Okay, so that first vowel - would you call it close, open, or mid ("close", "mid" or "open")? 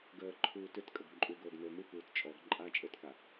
mid